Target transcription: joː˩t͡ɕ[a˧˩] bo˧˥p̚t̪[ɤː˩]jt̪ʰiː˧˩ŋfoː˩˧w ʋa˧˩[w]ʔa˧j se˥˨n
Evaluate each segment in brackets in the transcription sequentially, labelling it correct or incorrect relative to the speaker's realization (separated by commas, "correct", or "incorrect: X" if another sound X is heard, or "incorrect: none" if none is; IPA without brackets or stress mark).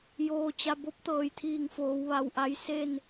correct, correct, correct